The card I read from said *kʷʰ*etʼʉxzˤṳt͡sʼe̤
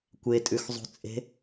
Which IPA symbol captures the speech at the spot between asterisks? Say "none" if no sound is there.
kʷ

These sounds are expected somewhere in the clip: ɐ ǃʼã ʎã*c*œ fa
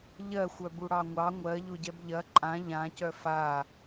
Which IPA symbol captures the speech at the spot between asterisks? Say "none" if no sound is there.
c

